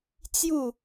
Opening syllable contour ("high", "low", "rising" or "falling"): falling